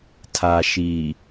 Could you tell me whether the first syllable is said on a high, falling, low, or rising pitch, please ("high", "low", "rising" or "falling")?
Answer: low